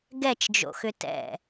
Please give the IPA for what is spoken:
ɡ ɛ t͡ʃ d͡ʒ o̰ x ʏ t ɛ̰

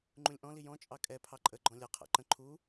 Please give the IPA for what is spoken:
ŋ͡ǃ ũ lʲ ʔ ɔ̃ l i j ɔ̃ t͡ʃʼ ɑ kʼ ɛ pʰ ɑ ǃʼ ə ɡ͡ǃ ɔ̃ lʲ ʌ qʰ æ̰ ǃ ə̃ ǃʰ u

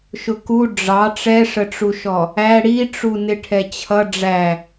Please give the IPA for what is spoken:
ʃ ʊ k u ɖ͡ʐ ɑ ʈ͡ʂ ɛ ʂ ə ʈ͡ʂ u ʃ ɔ | æ ɽ i ʈ͡ʂ u n ɪ ʈʰ ɛ t͡ɕʰ ʌ ɖ͡ʐ æ

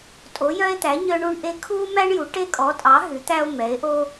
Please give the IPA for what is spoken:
tʼ o˨˦ j œ˦ e̯ t̪ æ˨˦ ɲ œ˦ ɳ u˦ ɳ ʔ e˦ kʰ u˦ m æ˦ ɳ j u˨˦ ʈ e˦ kʼ ɔ˨˦ tʼ ɑ˨˦ ɦ ʉ˨˦ t̪ æ˦ o̯ m ɛ˨˦ e̯ ʔ o˦

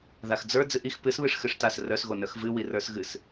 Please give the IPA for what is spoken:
ð a x d͡z ə˞ d͡z ɨ ʔ i x p ɨ s β ɨ ʂ x ɨ ʂ t a s r œ s ɣ o n œ x v ɨ w i r ə˞ s ɣ ɨ s

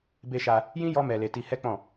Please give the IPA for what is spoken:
b e˧ ʃ a˧ | j ĩ˦ j ɔ˦ m ɛ˧ l e˧ t i˧ h ɛ˦ k͡p ɔ̃˦˨

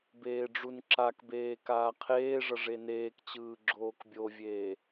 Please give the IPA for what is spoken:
b eː ɖ͡ʐ u n ǁ a k b eː k aː qʰ eː ʐ ʌ ʐ e n eː k t͡ɕ ɯː ɡ͡ǁ oː k bʲ o vʲ eː

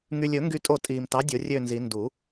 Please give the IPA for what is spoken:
ŋ y˨ lʲ ɵ˨˩˦ ŋ ɡ y˦˨ tʼ o˦˨ tʼ iː˨ m t ɑ˨˥ dʲ o˨˩˦ rʲ ø˦˨ n z i˨˩˦ n d u˨˩˦

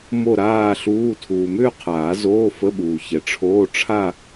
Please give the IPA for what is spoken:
m o˥˧ ɾ aː˥˧ ɬ uː˧˥˧ tʰ uː˨ m ʏː˥˧ qʰ aː˨˩˦ z oː˧˥˧ f ə˧˥˧ ɓ uː˨ ç ɛ˨ ʈ͡ʂʰ oː˧˥˧ ʈ͡ʂʰ a˥˧

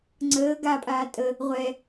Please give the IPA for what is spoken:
ŋ͡ǀ əː ɡ a pʼ aː tʼ ə | ʁʷ ɛ

